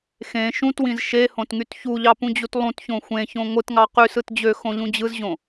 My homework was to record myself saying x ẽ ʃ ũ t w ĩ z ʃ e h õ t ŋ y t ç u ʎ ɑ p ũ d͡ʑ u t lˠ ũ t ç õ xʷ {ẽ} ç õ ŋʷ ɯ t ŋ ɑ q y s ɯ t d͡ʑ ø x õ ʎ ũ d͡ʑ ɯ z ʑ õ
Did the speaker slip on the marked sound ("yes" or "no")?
no